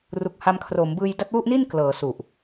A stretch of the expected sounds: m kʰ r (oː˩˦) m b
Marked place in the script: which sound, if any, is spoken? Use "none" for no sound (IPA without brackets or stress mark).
oː˩˦